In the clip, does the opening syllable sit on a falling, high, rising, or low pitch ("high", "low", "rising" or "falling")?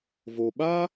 low